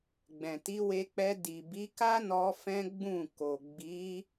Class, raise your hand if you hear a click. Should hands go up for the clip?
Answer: no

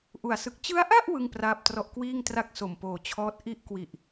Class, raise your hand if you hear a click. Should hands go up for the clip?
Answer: no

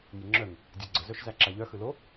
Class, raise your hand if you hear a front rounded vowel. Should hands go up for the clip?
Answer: yes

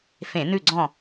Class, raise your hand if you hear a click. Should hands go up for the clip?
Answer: yes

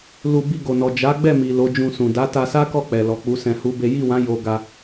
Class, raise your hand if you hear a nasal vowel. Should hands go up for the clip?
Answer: yes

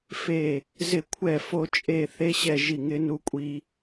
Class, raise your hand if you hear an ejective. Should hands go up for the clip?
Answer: yes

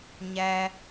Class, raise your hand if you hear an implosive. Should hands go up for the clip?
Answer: no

